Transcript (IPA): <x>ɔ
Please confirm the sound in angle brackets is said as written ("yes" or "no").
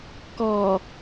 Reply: no